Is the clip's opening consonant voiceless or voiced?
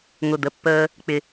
voiced